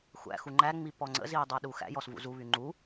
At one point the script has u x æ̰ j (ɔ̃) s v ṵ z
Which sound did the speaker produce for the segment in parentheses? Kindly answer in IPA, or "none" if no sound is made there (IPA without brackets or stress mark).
ɔ